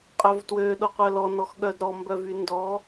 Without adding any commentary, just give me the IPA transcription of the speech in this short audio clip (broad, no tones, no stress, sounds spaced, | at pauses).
qʼ œ v t w ø ɗ o qʷ œ l ɔ n ɔ x ɠ œ d ɾ ɔ m b œ v y n d ɔ